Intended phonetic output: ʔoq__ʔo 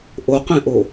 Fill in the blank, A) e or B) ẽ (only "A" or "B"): B